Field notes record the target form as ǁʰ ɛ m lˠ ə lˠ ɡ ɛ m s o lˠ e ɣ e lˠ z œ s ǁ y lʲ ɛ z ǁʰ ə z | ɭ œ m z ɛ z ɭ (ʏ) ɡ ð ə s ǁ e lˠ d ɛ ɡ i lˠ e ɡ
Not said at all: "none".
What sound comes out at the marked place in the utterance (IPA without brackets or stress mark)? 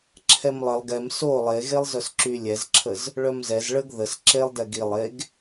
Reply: ə